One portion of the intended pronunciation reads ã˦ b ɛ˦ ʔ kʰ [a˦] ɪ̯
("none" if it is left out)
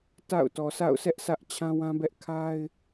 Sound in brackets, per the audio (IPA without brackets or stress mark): a˦